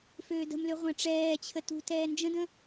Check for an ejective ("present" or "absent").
absent